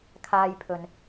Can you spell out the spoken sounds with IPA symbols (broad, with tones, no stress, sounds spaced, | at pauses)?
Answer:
kʰ aː˧ j pʰ ɵ˨ n